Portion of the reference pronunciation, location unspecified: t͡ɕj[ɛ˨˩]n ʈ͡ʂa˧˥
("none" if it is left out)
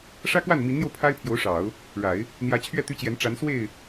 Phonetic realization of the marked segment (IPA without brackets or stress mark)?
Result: ɛ˧˥